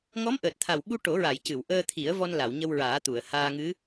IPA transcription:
ŋ ɔ˧˥ m ʔ əː˨˩ t̚ t̪ʰ a˨˩ w ɓ u˧ ʈ o˨˩˦ ɹ a˨˩˨ j c ɨ˨˩˨ w ʔ əː˧ t̪ʰ i˨˩˦ ə̯ v ɔ˧ n l a˨˩˨ w ɲ ə˧ w ɹ aː˨˩˦ t̪ u˨˩˨ ə̯ h aː˧ ŋ ɨ˧˥

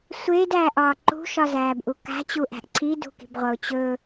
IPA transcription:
sʷ eː d æː ʔ ɒː ǃ ṳ ʃ ɒ z æː b ʔ u k a̤ t͡ɕ u ʔ æ̤ ʔ ǀʰ i d ṳ k i̤ b ʁʷ ʌ ʊ̯ t͡ɕ ɵ

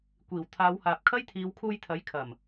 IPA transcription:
kʷ iː˨˩ w t̪ʰ aː˨˧ w h aː˨ p̚ kʰ ɐ˥ j t̪ʰ iː˨˧ w kʰ uː˧ j t̪ʰ ɐ˨˥ j kʰ ɐ˨˩ m

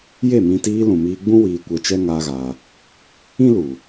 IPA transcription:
j e˦˨ m ĩ˧ t iː˧ l ũ˨ m iː˧ ɡ͡b ũ˦ w iː˧ kʷ ɛ˧ t͡ʃ ɛ˦ ŋ aː˦ ɣ a˧ | ĩ˦ l u˨

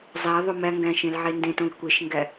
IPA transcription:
zˤ æ ðˤ o m æ ŋ ɡ æ̃ ʃ ẽ l ʕ e n d ẽ t õ l kʷ e ʃ ŋ ɡ æ

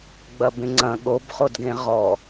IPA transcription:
ɡ͡b ɐ b ẽ ŋ͡ǀ ɐ̃ ɠ o b χ o d ɡ ẽ ʁ ɔ

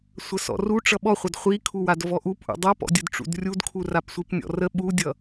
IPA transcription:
sʷ ə s ɔ̰ r u ʈ͡ʂ ʌ ɓ ɔ χʷ ʌ d χʷ i kʰ u w a d v ɔ ʔ u p ʔ ṵ dˤ a p ɔ̰ dʲ ə d ʈ͡ʂ ṵ d rʲ u d kʰ u r a p sʷ i p nʲ ɔ̰ r ə ɓ u dʲ ʌ

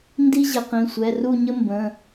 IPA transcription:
n d i˥ ʑ e˩˧ q ĩ˩˧˩ sʷ ɛ˩˧˩ r u˥˨ ɲ ə˥ m b ə̃˩˧˩

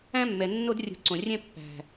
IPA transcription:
æ̃˦ mː ɛ˨ nː o˦ d rʲ ṳ˨˦ ǀ õ˨ rʲ ɛ̃˦ pː æ̤˦

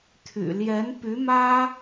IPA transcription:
t̪ʰ y̰˨˩ l j ɛ˧˥ n p y˧˥ m ä˥

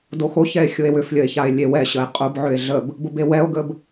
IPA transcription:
d o x o ç ɛ e̯ xʲ ʊ e̯ w ʏ f lʲ ə e̯ ç a e̯ lʲ e w ɛ ɕ ə e̯ qʼ ʊ b ʕ ʏ e̯ ɮ ə b | b ʊ b e w ɛ o̯ ɡ ə b

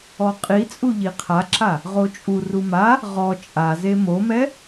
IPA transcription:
ɔ qʼ i t͡sʼ u ʎ i qʰ a ǁ a | ʁ o t͡ʃʼ u r u m a | ʁ ɔ t͡ʃʼ a z e m o m ɛ

